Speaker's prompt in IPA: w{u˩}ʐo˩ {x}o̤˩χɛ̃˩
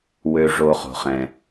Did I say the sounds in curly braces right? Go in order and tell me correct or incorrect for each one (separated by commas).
incorrect, incorrect